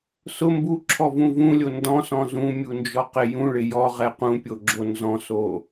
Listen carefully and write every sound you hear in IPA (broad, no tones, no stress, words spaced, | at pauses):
sʊ mbuǁʰɔvũ vũlʲo ndɔ̃sɔ̃ zũmʲund͡ʒɔqɪ jũɭɪ jɔʁɛ qũpʲoɡ͡ǁo nzɔ̃so